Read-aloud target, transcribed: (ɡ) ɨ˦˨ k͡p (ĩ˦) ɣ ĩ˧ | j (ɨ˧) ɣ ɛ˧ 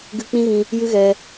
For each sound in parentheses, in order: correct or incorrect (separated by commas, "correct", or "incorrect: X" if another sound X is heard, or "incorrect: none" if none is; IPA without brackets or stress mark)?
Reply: correct, correct, incorrect: ɨ˦